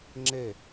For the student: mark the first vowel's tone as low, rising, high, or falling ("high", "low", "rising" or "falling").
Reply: falling